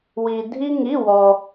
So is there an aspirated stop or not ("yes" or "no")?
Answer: no